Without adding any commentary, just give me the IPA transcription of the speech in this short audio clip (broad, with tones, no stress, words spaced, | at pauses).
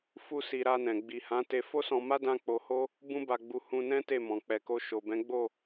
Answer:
fu˦si˧ ɾa˧nɛ̃˨ ɡ͡bi˨hã˨˦ te˧fo˦sɔ̃˧ma˦ dã˦k͡po˧ho˦ | bũ˦ba˧ɡ͡bu˧ hũ˧ nɛ̃˦ te˦˨mɔ̃˨k͡pɛ˨ko˧ ʃo˨bɛ̃˨˦ɡ͡bo˦˨